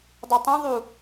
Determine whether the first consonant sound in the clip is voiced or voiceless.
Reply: voiced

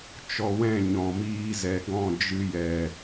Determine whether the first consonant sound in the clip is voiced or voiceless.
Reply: voiceless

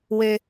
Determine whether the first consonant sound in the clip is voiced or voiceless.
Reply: voiced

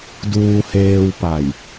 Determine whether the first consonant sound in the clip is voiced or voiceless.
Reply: voiced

